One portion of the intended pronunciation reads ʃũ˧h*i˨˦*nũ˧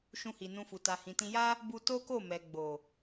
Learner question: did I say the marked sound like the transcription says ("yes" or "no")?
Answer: no